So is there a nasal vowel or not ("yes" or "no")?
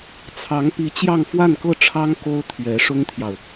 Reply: no